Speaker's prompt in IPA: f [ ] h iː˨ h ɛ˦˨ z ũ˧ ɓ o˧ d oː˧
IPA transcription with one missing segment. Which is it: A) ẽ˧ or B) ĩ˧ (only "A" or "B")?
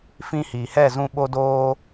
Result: B